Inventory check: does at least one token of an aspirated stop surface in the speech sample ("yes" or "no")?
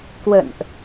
no